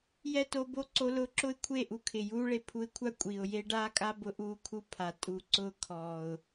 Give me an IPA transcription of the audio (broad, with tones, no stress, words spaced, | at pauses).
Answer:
jɛ˦to˧bo˦ǀo˧ lʊː˧ ǁʊ˦ɪ̯kʷʰe˦˨ ʔu˧kʰɪ˨juː˦ɭe˧ pʰu˧ɪ̯kʷʰa˦ kʷʼi˨ʊ̯je˦ ɖaː˦kʼa˦ bʊ˧ʔuː˧kʰu˧ pʰa˨ tʼu˨ǀʊː˧ kʰɔː˨ʊ̯